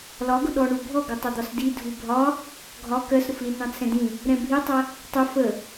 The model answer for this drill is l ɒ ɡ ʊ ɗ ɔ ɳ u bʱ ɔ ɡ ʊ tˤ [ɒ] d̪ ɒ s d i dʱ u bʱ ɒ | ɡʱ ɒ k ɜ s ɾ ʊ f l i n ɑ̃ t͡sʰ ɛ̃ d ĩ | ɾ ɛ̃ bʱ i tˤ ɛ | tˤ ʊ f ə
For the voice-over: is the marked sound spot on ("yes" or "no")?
no